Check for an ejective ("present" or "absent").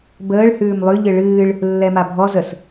absent